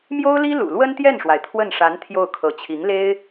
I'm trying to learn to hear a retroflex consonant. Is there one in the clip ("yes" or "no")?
yes